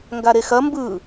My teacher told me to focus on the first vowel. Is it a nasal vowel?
no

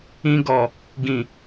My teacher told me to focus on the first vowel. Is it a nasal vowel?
yes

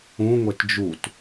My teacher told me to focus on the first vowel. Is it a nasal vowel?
yes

